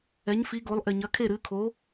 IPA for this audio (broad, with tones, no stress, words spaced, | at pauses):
ɛ˩˥ɲfi˩˥ ɡo˩˥lˠʔe˩ ɲɐ˩˥kʰe˥˩ ɾɨ˩˥kʰo˩˥